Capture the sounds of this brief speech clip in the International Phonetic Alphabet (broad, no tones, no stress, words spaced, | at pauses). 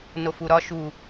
nofuɾɒ ʃu